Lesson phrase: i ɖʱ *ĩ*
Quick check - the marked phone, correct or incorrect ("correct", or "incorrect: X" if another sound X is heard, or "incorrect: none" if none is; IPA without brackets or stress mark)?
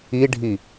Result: incorrect: i